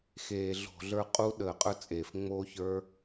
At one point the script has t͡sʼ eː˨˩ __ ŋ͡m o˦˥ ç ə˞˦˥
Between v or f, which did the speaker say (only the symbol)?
f